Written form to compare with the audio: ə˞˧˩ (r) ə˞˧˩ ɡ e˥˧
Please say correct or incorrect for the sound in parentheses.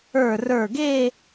correct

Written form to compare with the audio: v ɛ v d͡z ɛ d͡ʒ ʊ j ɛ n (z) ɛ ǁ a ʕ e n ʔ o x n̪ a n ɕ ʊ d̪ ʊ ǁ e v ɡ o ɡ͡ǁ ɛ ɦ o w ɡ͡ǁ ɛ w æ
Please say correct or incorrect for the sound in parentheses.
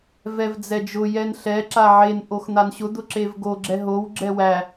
incorrect: ɬ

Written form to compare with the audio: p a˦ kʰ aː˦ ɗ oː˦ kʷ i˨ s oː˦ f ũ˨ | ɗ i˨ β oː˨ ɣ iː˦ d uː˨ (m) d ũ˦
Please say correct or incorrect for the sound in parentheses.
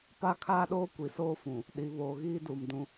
correct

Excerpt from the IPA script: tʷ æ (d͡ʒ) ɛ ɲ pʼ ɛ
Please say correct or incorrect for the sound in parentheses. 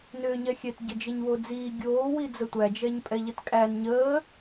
correct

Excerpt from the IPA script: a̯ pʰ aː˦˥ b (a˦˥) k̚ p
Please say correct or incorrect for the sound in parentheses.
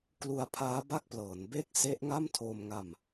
incorrect: a˥˩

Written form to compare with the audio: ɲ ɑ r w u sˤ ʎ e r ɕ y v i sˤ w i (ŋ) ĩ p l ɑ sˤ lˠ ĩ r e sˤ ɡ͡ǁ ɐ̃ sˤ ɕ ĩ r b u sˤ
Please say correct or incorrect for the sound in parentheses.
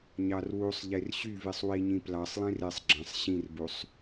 incorrect: ɲ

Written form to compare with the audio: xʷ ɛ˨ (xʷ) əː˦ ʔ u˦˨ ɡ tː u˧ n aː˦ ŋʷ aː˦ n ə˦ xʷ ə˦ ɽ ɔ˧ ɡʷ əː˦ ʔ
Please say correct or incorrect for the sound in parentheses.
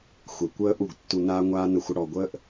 incorrect: kʷ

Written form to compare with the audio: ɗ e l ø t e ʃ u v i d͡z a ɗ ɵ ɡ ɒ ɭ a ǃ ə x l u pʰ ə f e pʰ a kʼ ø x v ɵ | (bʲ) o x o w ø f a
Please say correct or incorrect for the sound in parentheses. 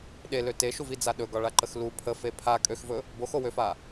incorrect: b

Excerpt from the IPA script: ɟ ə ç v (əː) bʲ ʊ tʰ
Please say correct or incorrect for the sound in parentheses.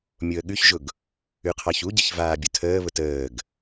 incorrect: aː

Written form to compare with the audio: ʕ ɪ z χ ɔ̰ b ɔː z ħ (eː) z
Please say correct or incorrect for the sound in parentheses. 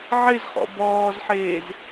correct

